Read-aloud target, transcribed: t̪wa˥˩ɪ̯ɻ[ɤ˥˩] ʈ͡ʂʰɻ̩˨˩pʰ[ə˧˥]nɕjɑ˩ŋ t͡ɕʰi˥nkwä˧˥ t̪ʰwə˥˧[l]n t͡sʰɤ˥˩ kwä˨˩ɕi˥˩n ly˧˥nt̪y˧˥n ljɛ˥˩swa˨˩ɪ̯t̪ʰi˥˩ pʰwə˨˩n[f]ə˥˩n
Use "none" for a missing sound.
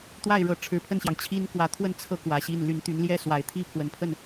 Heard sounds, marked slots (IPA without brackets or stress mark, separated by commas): ɤ˧˥, ə˥˩, none, pʰ